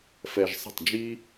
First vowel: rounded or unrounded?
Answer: unrounded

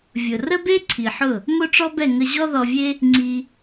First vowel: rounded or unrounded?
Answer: rounded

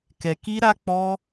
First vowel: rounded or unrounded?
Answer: unrounded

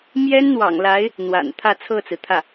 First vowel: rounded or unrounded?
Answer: unrounded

